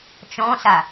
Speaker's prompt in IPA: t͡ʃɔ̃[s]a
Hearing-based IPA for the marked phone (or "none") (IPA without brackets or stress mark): s